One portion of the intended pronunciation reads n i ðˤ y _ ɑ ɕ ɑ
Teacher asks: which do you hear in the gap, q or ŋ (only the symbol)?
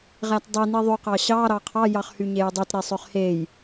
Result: q